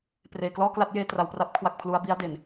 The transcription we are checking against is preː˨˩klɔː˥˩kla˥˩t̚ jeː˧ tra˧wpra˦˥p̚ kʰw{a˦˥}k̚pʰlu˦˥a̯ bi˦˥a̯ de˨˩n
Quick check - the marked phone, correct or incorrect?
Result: incorrect